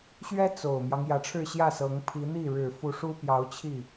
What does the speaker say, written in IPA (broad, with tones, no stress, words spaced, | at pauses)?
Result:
ɕɥɛ˥ t͡so˨˩ʊ̯mjɑ˦ŋ jä˧˥ʈ͡ʂʰɻ̩˥˧ɕjä˥˩sɤ˧˥ŋ pʰi˧˥n̪i˥˩ɻɻ̩˨˩ fu˧˥ʂu˥ pjɑ˧˥ʊ̯t͡ɕʰi˥˩